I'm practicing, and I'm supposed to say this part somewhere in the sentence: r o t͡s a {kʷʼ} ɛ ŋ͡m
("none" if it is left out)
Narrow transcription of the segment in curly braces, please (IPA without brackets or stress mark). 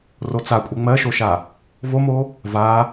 kʷʼ